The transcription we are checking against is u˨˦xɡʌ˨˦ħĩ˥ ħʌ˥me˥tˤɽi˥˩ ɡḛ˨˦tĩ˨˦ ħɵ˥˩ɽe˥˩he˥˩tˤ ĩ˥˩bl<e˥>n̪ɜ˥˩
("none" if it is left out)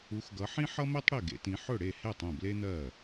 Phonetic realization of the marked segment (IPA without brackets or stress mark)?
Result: e˥